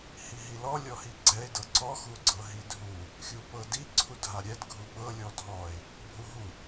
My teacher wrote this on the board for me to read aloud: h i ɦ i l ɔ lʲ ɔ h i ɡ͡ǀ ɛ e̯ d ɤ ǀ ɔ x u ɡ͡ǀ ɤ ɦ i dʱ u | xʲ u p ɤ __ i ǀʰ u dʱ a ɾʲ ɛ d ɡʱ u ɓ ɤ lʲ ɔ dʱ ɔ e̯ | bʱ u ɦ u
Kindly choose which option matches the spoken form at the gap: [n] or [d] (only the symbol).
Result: d